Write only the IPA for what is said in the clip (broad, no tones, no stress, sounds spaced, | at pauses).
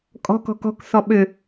kʼ ɔ̤ k ɔ̤ k ɔ̤ k s ɔ ɓ ʏ